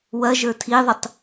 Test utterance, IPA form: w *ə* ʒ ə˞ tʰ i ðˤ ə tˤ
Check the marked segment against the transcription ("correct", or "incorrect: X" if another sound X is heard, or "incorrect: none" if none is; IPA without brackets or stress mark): incorrect: ɐ